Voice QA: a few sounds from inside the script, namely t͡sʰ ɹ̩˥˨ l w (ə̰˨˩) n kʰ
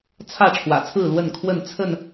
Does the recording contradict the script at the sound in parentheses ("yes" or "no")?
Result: yes